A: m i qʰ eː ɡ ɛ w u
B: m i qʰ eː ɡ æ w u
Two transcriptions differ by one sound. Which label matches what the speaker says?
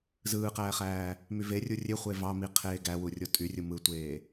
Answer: B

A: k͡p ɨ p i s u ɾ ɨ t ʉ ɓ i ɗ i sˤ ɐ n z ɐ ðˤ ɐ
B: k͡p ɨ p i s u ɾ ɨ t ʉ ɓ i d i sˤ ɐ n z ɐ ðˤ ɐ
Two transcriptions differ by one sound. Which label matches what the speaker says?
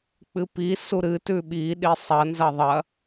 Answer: A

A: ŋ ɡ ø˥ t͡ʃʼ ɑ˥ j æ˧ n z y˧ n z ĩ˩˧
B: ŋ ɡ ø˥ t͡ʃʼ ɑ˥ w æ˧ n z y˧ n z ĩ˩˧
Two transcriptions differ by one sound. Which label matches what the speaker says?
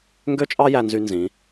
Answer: A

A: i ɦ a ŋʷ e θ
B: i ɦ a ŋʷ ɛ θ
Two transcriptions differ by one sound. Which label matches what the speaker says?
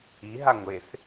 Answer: A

